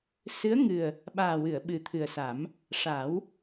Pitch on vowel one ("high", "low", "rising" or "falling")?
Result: rising